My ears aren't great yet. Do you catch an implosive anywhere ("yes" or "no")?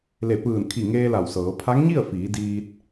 no